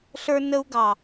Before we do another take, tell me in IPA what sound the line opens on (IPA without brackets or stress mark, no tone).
ɬ